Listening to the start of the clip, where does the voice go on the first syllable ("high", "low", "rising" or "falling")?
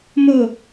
falling